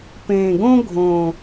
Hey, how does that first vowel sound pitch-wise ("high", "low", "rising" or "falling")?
low